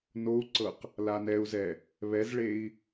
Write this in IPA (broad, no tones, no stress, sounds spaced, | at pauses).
n o u̯ ǀ ɤ q | l a n ɛ u̯ z ɛ | β ɛ z ɭ e i̯